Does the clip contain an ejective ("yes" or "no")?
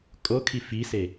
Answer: yes